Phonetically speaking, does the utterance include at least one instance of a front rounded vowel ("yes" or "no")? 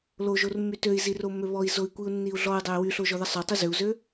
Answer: yes